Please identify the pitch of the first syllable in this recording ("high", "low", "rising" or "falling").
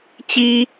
high